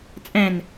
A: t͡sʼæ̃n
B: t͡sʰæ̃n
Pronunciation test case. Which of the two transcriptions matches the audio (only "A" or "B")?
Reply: A